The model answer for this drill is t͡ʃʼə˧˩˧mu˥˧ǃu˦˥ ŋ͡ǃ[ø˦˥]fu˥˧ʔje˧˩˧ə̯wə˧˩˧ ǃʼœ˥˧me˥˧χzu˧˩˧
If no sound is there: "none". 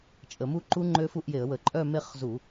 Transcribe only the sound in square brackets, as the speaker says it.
ø˦˥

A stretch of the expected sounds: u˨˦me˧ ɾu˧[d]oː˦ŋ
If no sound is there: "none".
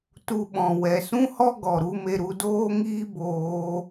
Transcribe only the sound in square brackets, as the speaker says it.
d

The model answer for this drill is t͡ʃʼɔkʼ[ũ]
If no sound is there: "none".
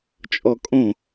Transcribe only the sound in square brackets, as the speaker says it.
õ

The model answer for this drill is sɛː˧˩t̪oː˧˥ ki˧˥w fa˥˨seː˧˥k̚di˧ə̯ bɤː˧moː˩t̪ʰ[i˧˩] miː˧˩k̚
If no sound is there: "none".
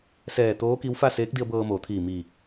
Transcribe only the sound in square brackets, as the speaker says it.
iː˧˩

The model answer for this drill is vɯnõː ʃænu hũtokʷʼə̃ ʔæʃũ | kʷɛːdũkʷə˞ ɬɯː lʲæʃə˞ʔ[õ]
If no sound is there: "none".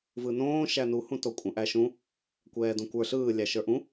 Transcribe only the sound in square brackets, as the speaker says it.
ũ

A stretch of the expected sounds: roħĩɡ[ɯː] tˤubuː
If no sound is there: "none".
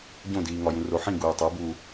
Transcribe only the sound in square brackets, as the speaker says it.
uː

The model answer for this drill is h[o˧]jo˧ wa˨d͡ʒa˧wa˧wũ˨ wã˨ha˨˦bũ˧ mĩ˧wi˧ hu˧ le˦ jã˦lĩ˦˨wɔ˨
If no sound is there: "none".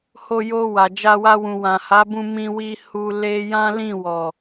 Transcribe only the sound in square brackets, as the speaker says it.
o˧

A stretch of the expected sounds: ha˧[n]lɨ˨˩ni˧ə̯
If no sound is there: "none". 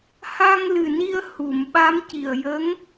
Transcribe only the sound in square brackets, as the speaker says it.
ŋ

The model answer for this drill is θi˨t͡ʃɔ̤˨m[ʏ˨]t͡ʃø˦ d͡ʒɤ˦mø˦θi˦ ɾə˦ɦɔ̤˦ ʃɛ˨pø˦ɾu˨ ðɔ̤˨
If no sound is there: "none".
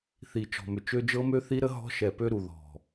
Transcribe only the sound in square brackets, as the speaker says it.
ʏ˨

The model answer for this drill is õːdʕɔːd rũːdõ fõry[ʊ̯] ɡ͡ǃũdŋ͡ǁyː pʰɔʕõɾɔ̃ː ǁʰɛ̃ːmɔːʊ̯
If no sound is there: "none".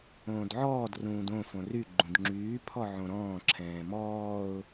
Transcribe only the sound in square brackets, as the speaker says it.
none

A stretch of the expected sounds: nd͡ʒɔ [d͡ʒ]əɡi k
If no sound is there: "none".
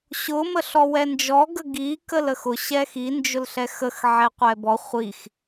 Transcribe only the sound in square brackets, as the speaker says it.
ɡ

